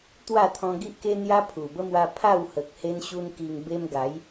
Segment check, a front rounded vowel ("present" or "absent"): absent